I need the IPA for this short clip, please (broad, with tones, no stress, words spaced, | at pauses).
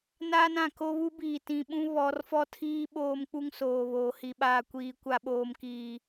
naː˦nã˨ ko˦βu˦biː˨ tĩ˨ɓũ˦ βɔ˨˦r fɔ˦˨tʰiː˦ ɓoː˦mk͡pu˦ŋsoː˨βoː˨ hi˨ɓaː˨kʷiː˨ kʷa˨ɓoː˨mkiː˨